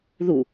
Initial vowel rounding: rounded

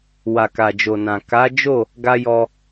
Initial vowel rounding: unrounded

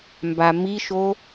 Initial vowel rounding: unrounded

